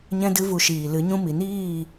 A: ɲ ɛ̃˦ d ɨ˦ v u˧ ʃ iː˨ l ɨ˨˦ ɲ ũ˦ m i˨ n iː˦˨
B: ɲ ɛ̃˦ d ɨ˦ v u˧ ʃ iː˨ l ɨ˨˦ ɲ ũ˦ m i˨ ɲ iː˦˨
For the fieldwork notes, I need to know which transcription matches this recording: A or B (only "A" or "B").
A